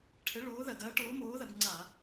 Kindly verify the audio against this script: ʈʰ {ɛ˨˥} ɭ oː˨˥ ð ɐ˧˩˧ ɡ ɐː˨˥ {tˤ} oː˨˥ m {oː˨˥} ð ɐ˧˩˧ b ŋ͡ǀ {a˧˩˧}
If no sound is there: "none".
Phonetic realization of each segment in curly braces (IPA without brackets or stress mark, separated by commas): ɘ˨˥, ʈ, oː˨˥, a˧˩˧